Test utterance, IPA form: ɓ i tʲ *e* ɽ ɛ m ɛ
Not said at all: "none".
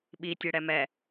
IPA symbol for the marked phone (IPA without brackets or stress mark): e